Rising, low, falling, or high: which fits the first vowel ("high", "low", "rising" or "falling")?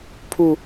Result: high